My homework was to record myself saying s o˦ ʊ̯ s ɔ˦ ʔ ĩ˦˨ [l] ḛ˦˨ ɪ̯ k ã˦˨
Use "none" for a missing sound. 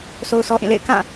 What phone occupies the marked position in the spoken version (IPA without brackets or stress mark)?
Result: l